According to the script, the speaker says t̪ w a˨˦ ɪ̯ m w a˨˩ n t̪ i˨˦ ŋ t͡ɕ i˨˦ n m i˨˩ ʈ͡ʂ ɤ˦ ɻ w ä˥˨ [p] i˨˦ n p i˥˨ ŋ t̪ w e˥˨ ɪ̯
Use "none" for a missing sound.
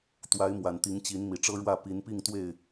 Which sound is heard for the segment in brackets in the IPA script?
p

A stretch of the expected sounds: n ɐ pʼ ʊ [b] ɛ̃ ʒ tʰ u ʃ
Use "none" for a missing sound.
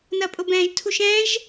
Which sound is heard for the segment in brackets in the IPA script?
b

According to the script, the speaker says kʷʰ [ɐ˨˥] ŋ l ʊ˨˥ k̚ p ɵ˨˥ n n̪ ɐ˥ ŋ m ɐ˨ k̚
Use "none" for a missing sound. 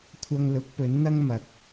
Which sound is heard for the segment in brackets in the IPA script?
ɐ˧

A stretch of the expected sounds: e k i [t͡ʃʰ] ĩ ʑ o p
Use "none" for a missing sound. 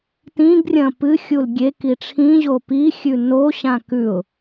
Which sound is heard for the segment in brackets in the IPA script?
ʈ͡ʂʰ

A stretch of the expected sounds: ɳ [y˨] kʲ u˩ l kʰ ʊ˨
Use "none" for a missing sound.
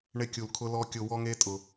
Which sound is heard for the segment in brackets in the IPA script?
ɪ˨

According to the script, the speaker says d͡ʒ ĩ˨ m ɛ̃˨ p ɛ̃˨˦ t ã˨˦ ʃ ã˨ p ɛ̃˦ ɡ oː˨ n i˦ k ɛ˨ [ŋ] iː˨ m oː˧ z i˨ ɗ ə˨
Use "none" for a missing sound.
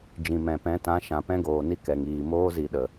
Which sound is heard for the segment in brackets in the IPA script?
ŋ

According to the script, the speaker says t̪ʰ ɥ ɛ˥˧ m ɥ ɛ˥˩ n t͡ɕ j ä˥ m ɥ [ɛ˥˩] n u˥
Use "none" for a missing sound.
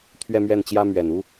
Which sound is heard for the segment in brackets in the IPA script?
ɛ˨˩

